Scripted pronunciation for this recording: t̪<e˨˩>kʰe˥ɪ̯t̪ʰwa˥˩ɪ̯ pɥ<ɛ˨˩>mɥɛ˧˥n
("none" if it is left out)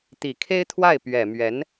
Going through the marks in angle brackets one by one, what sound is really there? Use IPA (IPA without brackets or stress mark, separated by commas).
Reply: i˨˩, ɛ˨˩